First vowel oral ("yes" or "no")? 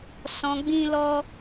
no